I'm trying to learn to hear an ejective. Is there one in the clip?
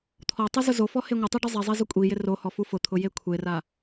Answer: yes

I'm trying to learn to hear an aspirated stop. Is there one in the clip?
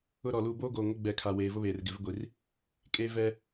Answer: yes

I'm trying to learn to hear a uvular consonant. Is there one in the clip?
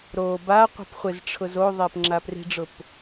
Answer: yes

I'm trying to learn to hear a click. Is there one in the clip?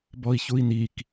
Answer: no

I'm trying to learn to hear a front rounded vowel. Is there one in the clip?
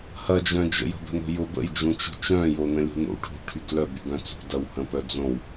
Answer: yes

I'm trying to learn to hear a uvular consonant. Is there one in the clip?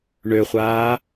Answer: yes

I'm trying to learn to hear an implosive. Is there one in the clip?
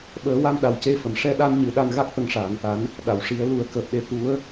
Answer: yes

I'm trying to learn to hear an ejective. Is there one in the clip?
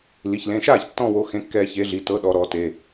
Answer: no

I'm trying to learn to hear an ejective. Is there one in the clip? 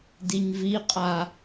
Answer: yes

